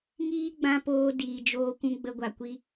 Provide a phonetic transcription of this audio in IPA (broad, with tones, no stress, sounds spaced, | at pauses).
ŋ iː˦ ɡ͡b ã˧ p oː˧ d iː˨ d͡ʒ oː˧ kʷ ũ˧ ɡ͡b ə˧ ɡʷ a˨ kʷ i˧